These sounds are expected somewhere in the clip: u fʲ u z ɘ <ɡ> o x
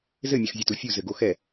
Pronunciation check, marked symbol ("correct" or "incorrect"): correct